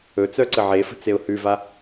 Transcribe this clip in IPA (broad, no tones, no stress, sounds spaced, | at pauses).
ɵ t͡s œ ǀ ə ʕ e f ə̤ t͡s e ʊ̯ h ʉ v a